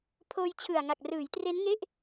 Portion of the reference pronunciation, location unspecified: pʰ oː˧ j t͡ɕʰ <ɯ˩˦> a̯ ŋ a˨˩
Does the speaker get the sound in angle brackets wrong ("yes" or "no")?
yes